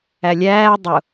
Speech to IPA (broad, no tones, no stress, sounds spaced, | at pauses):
æ lʲ æː dˤ ʊ